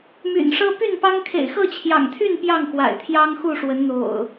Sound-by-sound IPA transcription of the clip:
m y̰˨˩ n ʂ ɤ˦ p y˥˨ n p ɑ˦ ŋ kʰ ḛ˨˩ ɪ̯ x ɤ˥˨ t͡ɕʰ j ɑ̰˨˩ ŋ t̪ʰ y˥˨ n p j ɑ˥˨ ŋ x w a̰˨˩ ɪ̯ t̪ʰ j ɑ˦ ŋ x u˥˨ ʂ w ə˨˦ n n̪ o̰˨˩ ʊ̯

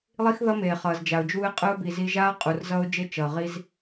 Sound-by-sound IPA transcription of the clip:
lˠ i˦ x ð ʌ˦ m eː˨ χ ʌː˨ z d͡ʒ a˨ ʊ̯ d͡ʒ uː˦ ɪ̯ qʼ ɯ˦ ʊ̯ b i˨ z i˧ ʒ aː˦ qʼ u˨ r z ʌː˦ ʊ̯ d͡ʒ e˦ t͡ʃ ʌː˨ ʁ i˦ z

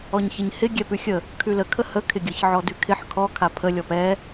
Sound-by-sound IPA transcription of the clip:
ɔ ɲ ç ɪ ɲ h ɪ ɡʲ ɛ p ʉ xʲ ə | kʰ ʉ l ə kʰ ə h ə kʰ ɪ ɡʲ ə ç ʕ ɔ d ʉ kʰ ɪ ħ kʰ ɔ kʰ a pʰ ə lʲ ɔ p ɛ

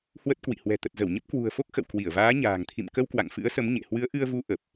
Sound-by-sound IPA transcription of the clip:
h w ə˦˥ t̚ k w ḭ˧˨ h w ɛ̤˨˩ t̪ ə˨˩ t̚ z ə˧˩ w ɲ ə˦˥ p̚ k w ṳ˨˩ ə̯ f o˦˥ k̚ x ə̰˧˨ w k w i˧˩ ə̯ v aː˨˦ ɲ a̤ː˨˩ ŋ t̪ʰ ḭ˧˨ m k ə˧ w k w a̰˧˨ ŋ f ɨ̰˧˥ ə̯ s ə˨˦ m ɲ ḛ˧˨ h w ɨ˨˦ ə̯ ʔ ɨ˧ ə̯ v u˨˦ ʔ ə˨˩ p̚

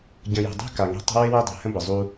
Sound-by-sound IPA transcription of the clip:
ɟ ə̃˨ j ṳ˨ dˤ ṳ˦ k a˨ ŋ e̤˦ tˤ ə̤˦ w e˦ w e˦ dˤ e̤˨ h ə̃˦ b ə˨ zˤ u˦

